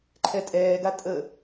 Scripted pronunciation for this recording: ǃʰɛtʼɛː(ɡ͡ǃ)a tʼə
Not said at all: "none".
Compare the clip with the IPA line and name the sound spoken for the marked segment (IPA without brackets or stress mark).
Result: ɡ